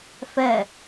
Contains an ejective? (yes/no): no